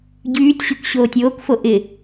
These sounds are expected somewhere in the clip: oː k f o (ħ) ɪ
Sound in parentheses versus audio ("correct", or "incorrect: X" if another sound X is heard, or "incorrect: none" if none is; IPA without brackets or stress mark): incorrect: ʔ